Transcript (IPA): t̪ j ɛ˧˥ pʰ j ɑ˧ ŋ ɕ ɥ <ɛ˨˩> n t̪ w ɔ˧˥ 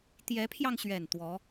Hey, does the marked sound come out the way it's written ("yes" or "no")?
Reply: yes